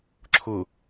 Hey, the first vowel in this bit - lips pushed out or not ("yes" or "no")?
yes